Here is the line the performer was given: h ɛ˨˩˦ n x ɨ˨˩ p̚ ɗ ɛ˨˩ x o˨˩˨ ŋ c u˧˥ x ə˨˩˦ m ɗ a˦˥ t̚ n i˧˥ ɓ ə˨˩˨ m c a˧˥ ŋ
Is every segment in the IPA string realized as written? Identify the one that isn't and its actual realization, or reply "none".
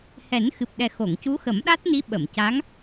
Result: none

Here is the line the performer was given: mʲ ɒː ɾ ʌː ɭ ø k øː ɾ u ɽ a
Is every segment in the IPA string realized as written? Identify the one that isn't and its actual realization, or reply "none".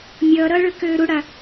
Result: ɒː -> ʌː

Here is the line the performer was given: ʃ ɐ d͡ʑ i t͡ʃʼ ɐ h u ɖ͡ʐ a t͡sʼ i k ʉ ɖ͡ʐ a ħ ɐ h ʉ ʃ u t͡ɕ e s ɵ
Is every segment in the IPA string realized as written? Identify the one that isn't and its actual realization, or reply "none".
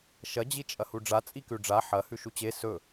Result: none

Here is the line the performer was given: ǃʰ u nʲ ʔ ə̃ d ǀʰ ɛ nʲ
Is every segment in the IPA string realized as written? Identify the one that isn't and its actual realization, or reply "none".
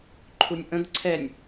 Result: none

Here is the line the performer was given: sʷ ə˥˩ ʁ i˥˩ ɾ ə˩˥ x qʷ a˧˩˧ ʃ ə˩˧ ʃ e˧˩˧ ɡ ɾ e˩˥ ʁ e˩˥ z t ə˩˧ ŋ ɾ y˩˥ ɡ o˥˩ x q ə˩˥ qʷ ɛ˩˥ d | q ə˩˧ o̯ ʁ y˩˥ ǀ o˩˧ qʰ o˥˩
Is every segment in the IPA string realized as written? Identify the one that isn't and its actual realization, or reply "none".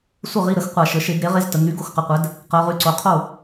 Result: none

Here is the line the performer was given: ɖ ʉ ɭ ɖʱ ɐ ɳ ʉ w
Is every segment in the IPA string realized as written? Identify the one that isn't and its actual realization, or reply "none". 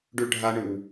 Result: ɐ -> a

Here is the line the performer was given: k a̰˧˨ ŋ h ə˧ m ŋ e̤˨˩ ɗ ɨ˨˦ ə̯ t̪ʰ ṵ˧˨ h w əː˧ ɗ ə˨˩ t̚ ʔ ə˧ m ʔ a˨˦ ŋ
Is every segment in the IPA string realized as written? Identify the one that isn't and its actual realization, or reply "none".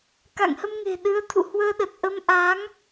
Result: none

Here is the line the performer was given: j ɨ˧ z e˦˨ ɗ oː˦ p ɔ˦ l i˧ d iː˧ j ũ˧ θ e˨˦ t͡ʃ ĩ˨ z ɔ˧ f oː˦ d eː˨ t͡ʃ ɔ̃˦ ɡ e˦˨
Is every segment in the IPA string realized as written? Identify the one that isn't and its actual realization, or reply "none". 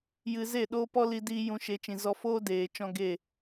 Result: θ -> ʃ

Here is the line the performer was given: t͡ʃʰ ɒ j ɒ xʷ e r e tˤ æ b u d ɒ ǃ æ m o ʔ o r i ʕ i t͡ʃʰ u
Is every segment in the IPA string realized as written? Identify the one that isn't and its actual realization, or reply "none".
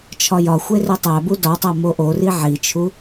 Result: ǃ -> tˤ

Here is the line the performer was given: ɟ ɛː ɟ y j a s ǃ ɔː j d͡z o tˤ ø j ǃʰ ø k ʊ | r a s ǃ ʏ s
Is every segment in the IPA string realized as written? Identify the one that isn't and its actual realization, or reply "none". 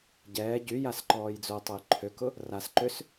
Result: none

